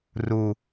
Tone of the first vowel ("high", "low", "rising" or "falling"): low